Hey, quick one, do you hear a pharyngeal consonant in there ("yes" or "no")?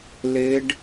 no